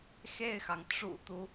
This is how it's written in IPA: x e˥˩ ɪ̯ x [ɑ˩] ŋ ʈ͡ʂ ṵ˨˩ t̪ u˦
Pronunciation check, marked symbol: correct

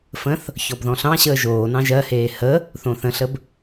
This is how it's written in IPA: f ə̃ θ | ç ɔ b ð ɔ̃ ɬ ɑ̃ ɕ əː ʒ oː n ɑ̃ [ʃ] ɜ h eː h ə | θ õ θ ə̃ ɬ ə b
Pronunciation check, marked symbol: incorrect: ʒ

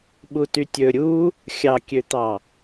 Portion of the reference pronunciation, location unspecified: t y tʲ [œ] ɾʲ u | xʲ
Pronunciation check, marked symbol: incorrect: ɵ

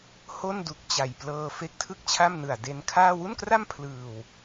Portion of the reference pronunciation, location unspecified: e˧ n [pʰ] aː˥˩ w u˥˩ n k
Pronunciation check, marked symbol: incorrect: kʰ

